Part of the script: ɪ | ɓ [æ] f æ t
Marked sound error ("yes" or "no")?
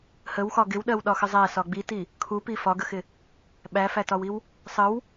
no